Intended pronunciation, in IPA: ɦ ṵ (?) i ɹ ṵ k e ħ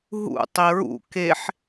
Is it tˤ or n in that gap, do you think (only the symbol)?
tˤ